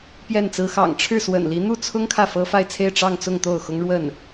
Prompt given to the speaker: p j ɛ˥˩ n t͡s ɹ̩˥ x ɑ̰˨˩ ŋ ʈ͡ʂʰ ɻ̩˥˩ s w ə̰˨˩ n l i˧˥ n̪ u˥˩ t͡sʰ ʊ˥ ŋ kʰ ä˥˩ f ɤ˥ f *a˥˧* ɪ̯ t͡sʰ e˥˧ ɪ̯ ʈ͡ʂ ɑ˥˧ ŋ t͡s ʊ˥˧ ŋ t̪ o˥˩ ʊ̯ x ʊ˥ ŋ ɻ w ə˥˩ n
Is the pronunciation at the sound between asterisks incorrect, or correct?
correct